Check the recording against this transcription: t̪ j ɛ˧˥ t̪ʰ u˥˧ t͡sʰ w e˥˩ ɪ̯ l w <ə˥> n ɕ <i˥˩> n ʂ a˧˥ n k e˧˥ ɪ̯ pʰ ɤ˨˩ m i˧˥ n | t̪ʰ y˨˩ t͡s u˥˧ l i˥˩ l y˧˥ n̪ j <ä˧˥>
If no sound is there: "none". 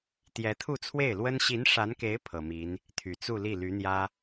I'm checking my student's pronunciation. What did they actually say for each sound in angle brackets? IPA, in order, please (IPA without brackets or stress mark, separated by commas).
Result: ə˥, i˧˥, ä˥